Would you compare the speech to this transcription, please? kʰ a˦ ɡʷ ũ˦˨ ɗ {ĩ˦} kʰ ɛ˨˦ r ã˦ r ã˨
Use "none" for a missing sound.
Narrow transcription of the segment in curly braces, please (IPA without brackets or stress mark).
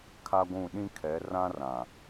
ĩ˦